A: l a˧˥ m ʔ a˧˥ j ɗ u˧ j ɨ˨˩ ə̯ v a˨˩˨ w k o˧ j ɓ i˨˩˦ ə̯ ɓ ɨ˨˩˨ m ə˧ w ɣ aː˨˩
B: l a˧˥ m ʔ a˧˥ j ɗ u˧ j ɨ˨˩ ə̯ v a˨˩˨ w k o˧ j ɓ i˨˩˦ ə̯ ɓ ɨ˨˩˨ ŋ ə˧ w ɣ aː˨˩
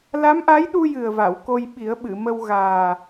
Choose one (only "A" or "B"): A